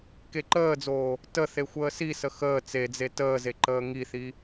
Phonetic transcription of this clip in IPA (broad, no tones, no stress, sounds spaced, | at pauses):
k e ǃ əː d͡z oː | t ə θ e xʷ əː s i s ə x əː t͡s e d͡z e t əː z e ǃ əː ŋ i θ i